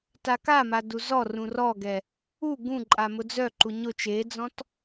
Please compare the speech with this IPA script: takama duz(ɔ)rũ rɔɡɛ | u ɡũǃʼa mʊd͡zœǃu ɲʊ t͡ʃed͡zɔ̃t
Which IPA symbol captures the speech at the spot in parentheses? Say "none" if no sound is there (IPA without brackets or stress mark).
ɔ